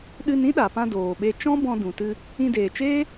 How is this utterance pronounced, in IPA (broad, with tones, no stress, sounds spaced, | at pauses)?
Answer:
ɗ ɨ˧ n ĩ˦ ɗ a˨ p ã˧ d oː˨ ɓ e˧ t͡ʃ ɔ̃˦ b ɔ̃˧ d ũ˨ t ɨ˧ | ĩ˧ d eː˨ t͡ʃ eː˦